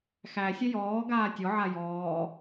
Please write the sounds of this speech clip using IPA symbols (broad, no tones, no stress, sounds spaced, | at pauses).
x æ sʲ ɛ j ɔː ɡ aː tʲ ɔ ʕ a j ɔː